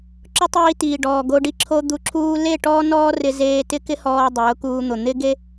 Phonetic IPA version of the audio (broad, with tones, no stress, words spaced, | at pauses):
ǁʊ˦tˤiː˧ tiː˨ɖɔː˨ɡo˧ ɖi˧ǁʰo˧ d̪u˧ǁʰuː˦ le˦˨ ʈɔː˦nɔː˦rɪ˧zeː˧ tɪ˦kɪ˦hɔː˧ dˤʊː˨˦kuː˧n̪ʊ˨ n̪ɪ˦ɡe˦